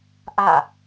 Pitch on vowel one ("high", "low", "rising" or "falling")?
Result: falling